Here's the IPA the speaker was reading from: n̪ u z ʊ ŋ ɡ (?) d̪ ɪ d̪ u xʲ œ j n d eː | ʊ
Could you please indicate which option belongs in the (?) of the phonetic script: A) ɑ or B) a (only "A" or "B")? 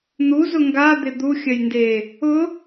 B